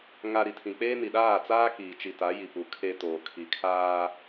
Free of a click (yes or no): yes